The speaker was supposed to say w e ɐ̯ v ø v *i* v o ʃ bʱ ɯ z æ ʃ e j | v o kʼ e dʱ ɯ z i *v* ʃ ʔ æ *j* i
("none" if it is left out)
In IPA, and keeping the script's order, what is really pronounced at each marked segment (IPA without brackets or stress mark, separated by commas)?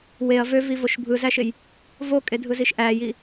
i, none, j